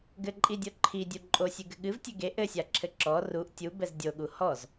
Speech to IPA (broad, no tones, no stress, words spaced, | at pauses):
ɡɘǃʼidʲo ǃʰidʲu ǃʼosʲɨɡɘ ɠɨvtʲɘ ɡe ʔɘsʲaǁʰɘ ǁɔ ruʔ tʲubɛz dʲoɠu hɔz